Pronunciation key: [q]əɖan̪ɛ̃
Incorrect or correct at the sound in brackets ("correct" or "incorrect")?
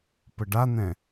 incorrect